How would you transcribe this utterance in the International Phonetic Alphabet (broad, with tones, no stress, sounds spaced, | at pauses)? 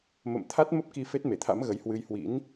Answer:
m ə̰˧˨ m t̪ʰ a˦˥ t̚ m ə˦˥ p̚ k i˧ f e˦˥ t̚ m e˧˩ t̪ʰ a̰˧˥ m ɣ ə˨˦ j h w ɨ˧ j h w ḭ˧˥ n